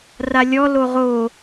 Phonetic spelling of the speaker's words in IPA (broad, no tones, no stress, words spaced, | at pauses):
ralʲɔ loʁo